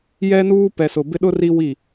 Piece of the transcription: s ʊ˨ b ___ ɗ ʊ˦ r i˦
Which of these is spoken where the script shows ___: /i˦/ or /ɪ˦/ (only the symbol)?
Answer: ɪ˦